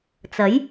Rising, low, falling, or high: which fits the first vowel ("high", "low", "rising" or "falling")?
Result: rising